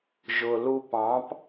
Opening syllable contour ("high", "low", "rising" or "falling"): low